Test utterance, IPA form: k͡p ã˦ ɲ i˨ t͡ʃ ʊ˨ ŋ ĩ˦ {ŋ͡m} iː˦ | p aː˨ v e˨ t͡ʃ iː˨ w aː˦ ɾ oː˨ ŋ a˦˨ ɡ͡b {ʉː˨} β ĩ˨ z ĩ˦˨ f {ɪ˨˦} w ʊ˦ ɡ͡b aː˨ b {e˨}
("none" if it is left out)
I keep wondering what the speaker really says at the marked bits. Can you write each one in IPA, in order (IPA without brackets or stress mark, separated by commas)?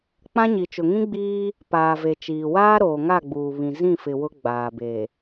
ɡ͡b, uː˨, ɪ˨, e˨